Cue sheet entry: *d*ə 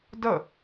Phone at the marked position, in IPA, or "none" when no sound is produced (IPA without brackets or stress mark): d